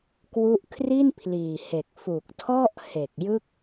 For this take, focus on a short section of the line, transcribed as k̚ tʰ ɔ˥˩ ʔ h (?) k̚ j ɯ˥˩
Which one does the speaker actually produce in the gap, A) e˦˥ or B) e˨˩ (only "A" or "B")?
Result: B